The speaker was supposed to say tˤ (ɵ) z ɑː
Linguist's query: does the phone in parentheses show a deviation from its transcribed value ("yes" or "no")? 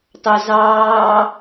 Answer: no